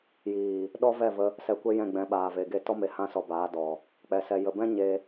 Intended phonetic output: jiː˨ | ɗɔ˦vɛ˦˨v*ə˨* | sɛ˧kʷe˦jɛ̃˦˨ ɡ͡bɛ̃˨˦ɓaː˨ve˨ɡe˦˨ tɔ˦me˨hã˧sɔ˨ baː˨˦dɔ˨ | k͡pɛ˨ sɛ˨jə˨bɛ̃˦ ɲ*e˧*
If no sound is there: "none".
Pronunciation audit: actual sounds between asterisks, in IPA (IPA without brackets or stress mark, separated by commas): ə˧, e˧